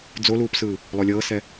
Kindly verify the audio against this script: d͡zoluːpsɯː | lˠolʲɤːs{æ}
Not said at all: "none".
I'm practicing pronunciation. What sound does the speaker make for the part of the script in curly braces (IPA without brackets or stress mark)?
ɛ